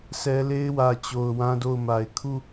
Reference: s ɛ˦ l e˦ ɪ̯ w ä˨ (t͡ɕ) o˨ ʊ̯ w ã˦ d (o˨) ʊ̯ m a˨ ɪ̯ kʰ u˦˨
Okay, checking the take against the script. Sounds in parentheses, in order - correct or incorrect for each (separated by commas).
correct, incorrect